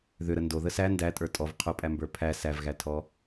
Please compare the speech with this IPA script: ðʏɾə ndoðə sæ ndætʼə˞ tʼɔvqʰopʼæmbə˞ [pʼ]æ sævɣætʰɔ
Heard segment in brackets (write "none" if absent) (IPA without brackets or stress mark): pʰ